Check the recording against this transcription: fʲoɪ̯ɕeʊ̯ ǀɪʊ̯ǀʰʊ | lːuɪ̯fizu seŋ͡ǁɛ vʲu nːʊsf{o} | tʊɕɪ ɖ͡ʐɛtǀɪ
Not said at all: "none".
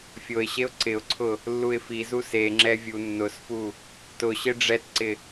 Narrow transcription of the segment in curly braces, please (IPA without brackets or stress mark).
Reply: u